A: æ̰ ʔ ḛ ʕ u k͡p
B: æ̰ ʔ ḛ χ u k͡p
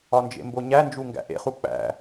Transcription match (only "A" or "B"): B